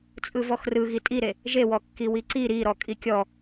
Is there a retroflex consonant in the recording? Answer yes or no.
no